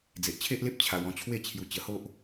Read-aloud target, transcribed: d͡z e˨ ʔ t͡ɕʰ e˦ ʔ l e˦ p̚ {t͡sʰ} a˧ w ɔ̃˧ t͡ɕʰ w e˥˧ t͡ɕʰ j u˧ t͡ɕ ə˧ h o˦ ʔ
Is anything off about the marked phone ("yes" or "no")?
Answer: yes